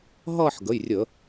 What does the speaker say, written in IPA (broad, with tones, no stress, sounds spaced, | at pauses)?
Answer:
ɦ ʌː˥˧ ħ ɡ ə˩˧˩ j rʲ ə˧˩˧